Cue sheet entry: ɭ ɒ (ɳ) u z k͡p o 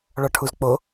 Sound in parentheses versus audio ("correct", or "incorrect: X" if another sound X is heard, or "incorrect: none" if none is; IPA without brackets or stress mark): incorrect: ʈʰ